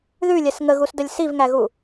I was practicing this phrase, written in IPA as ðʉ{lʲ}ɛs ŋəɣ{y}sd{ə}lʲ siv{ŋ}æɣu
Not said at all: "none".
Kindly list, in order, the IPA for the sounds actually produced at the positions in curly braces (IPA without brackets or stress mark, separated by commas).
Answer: lʲ, u, ə, ŋ